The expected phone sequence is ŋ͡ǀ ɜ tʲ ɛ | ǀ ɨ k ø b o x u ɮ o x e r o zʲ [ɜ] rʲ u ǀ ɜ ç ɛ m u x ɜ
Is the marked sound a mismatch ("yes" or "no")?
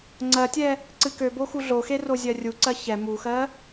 no